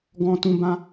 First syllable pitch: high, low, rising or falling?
low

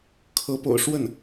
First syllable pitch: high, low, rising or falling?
rising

